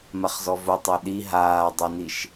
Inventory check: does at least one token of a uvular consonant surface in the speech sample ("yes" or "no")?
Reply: yes